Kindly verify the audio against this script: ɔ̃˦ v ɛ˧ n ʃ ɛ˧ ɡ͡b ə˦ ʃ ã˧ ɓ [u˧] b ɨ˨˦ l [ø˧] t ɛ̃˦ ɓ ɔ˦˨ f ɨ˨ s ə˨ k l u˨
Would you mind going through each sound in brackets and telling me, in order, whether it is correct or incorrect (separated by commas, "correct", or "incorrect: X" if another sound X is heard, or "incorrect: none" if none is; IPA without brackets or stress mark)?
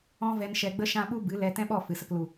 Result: correct, incorrect: ɛ˧